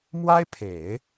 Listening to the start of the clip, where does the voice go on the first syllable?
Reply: high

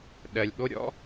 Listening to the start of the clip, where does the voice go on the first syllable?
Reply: low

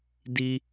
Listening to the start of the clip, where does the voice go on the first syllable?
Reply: high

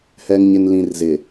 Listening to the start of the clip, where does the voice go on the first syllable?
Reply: low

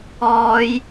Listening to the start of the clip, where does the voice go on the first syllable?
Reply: high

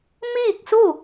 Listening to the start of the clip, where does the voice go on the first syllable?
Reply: falling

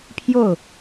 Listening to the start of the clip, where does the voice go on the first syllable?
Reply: falling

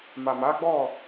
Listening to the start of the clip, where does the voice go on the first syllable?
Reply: low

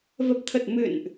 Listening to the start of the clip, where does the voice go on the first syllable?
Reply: low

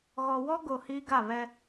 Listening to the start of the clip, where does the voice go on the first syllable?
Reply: low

